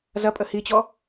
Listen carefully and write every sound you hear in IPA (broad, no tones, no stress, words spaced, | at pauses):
zɐpʼə hit͡ɕɔ